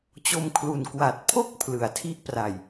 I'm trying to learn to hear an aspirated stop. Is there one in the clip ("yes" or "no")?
yes